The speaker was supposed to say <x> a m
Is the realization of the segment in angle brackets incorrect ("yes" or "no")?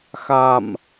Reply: no